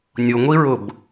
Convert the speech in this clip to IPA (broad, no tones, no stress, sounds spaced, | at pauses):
nʲ ʊ ŋʷ i ɹ ʊ b